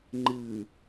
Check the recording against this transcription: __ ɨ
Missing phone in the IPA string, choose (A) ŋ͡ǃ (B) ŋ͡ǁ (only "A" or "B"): A